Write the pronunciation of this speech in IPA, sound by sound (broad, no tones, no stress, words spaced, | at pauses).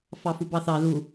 fɑfubɑθɑ ðu